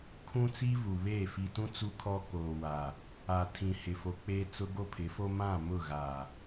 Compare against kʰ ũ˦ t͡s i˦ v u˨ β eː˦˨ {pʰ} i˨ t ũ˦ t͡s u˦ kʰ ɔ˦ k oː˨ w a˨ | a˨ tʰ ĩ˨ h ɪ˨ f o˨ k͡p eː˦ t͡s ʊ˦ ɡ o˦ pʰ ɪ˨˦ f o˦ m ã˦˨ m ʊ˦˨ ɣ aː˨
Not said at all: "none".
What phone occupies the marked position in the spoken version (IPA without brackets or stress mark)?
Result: f